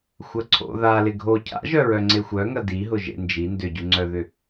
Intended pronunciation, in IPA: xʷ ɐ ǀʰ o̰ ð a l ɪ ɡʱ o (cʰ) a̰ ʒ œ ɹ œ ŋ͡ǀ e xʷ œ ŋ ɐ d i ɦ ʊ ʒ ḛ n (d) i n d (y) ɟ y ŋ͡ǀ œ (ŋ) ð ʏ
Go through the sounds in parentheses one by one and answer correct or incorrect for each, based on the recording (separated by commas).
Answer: correct, incorrect, incorrect, incorrect